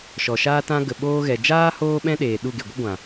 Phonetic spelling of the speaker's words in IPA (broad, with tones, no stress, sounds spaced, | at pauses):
ʃ ɔ˨ ʃ aː˦ t ã˧ ɡ ə˨ ɓ oː˧ ɣ ɛ˨ d͡ʒ aː˦ h oː˦ ɓ ɛ̃˦ ɗ eː˨ ɗ u˦˨ ɡ e˨ ɡʷ ə˦ ɡʷ ã˨